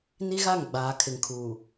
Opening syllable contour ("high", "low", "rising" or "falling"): high